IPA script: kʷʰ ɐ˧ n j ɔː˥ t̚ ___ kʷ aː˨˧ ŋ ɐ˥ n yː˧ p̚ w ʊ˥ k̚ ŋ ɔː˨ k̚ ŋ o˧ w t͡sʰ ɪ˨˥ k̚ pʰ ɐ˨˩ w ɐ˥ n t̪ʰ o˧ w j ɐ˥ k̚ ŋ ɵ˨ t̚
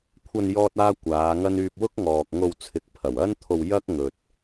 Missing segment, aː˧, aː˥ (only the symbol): aː˥